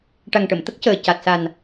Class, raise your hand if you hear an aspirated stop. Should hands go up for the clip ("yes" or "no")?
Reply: no